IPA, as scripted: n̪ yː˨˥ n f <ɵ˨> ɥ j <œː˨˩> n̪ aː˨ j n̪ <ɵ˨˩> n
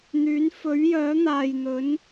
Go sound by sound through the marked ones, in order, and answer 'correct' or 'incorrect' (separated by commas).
incorrect, incorrect, incorrect